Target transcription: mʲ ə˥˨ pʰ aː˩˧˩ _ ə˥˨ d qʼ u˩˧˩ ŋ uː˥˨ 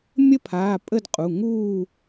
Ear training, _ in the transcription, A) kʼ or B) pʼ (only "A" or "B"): B